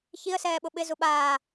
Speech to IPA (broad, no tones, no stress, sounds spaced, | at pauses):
ç i ə̯ s ɛː ɓ ʊ ɓ ɪ z u ɓ aː